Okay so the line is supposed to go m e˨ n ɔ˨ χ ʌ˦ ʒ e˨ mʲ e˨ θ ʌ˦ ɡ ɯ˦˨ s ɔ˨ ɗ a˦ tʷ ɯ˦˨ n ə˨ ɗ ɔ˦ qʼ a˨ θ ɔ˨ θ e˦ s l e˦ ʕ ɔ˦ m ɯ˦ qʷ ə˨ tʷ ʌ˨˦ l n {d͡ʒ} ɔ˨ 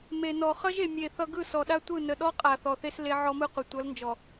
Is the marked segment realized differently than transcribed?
no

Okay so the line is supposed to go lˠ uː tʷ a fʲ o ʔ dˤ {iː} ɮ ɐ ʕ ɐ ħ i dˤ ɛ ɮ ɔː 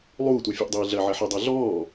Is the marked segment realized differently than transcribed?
no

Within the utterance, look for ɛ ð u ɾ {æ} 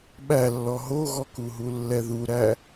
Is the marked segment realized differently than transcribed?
no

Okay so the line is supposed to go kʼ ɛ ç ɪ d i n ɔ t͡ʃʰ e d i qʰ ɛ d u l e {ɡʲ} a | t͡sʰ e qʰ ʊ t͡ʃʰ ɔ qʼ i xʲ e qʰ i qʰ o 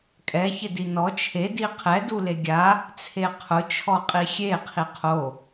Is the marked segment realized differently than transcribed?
no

